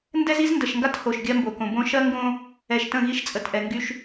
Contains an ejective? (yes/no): yes